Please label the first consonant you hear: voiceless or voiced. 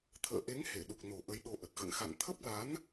voiceless